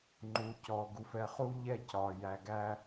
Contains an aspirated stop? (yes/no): no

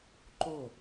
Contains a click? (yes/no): yes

